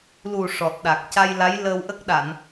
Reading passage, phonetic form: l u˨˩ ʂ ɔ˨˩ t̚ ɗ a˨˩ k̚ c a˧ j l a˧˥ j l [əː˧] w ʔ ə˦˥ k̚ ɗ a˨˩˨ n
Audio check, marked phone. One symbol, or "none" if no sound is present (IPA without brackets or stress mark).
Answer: əː˧